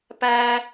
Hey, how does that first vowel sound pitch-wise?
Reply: high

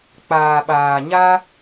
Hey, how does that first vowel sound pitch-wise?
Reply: low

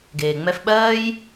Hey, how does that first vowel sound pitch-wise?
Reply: low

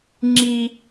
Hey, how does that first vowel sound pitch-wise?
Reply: high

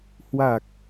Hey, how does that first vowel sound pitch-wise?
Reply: low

